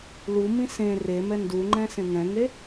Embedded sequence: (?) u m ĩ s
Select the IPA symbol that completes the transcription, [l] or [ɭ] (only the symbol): l